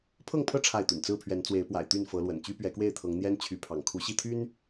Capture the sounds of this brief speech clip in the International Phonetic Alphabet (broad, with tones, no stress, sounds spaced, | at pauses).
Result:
pʰ ɤ˥˨ ŋ pʰ ɤ˦ ʈ͡ʂʰ a˥˨ ɪ̯ t̪ y̰˨˩ n t͡s ɹ̩˥˨ pʰ ɥ ɛ˨˦ n t͡s w e˨˦ ɪ̯ p w a̰˨˩ ɪ̯ t̪ y˥˨ n f ɤ˨˦ l w ə̰˨˩ n t͡ɕ y˦ p ɥ ɛ˨˦ k w e˥˨ ɪ̯ t̪ʰ ɤ˨˦ ŋ n̪ j ɛ˦ n t͡ɕʰ y˨˦ pʰ ɑ̰˨˩ ŋ kʰ u˨˦ ɕ i˥˨ t̪ʰ y˦ n